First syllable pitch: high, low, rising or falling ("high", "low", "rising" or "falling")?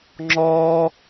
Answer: high